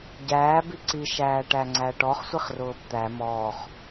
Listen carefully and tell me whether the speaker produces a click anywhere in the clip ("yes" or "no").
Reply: yes